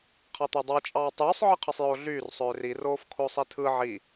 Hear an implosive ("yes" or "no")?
no